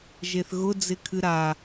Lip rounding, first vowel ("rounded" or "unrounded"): unrounded